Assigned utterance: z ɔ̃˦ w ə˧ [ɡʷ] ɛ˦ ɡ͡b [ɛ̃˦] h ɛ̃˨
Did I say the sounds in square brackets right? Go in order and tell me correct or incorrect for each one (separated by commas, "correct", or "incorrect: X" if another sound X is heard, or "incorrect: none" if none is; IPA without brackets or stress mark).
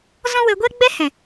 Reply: correct, incorrect: ɛ˦